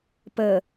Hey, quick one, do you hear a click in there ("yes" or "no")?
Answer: no